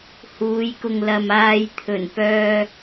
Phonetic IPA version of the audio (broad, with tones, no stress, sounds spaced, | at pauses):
h uː˨˧ j k ʊ˨ ŋ l ɐ˨ m aː˨ j t̪ʰ ɵ˨˩ n p œː˧